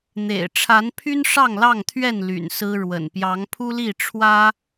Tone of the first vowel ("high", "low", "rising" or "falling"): low